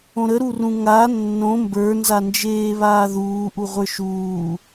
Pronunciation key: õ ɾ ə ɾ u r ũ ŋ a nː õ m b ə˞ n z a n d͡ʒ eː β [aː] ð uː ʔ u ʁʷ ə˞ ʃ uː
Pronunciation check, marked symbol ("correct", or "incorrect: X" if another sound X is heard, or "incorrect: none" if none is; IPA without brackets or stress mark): correct